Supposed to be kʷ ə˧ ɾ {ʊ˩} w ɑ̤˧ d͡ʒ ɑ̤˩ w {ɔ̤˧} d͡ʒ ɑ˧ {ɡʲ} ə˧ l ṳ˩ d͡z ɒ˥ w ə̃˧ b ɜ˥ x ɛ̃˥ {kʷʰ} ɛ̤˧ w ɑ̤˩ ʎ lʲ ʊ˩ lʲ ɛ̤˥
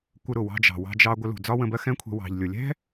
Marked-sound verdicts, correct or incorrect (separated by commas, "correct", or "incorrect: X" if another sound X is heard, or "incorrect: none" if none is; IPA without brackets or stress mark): correct, incorrect: ɑ̤˧, incorrect: ɡʷ, correct